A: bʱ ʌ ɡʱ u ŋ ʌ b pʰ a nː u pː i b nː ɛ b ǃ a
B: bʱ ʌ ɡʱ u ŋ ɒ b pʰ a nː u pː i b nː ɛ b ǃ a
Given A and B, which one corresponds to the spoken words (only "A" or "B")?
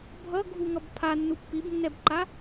A